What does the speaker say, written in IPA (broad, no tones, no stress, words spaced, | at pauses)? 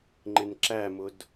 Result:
ŋ͡ǃɪnǁæmʊd